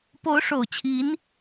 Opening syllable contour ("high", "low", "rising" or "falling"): rising